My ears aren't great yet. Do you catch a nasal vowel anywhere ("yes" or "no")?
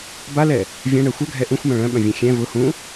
yes